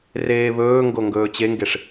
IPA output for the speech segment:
r eː β ɵː ŋ ɡ o ŋ ɡ ɵː t͡ɕ e ŋ ɡ e ʂ

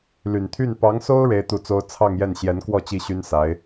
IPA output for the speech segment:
l y˨˩ n t̪ʰ y˥˩ n p ɑ˧˥ ŋ s o˥ ʊ̯ ɻ e˥ ɪ̯ t̪ u˥˩ t͡s o˥ ʊ̯ t͡sʰ ɑ˥˧ ŋ j ɛ˥˩ n ɕ j ɛ˧˥ n k w ɔ˥˧ t͡ɕ i˥˩ ɕ y˥ n s a˧˥ ɪ̯

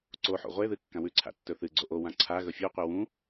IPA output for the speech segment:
ǀ o ħ o̰ ʁʷ e ð ɨ kː ã w ʉ ǀʰ a̰ tː ɵ θ ɨ ɡ͡ǀ o ʔ o w ã ǀʰ a ɣ ɵ fʲ ʉ qʷ i w ũ

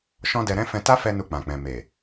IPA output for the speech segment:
ʃ ɔ̃˦ d ɛ˧ ɾ ɛ̃˦ f ɛ̃˧ t a˦ f ɛ˧ n u˧ k͡p ã˨ k͡p ɛ̃˨ m e˨

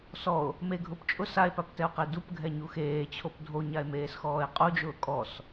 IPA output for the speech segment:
s ɔ o̯ | m e ɡʱ ʊ p t͡ʃʼ ʊ s a e̯ p a p t ɛ o̯ q e d u p ɡʱ ɛ ɲ u x eː t͡ɕʰ o p dʱ o ɲ a e̯ m eː s x ɔː e̯ qʼ u d͡ʒ ʊː kʼ ɔ s

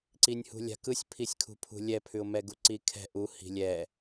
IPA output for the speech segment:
ǀ i nʲ h ṳ lʲ a̤ k ɯ sʲ pʰ i sʲ kʰ ṳ pʰ ṳ lʲ ɛ pʰ ʉ ʊ̯ m ɛ ɡ u ǀ i kʰ ɛ̤ ʔ u h i̤ lʲ ɛ

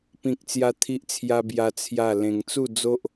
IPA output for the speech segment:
p ĩ˦ k̚ t͡s j a˦ t̪ʰ i˦ ʔ t͡sʰ j a˦ b j a˦ t͡sʰ j a˥˧ l ẽ˧ ŋ t͡s u˥˧ d͡z o˦ ʔ

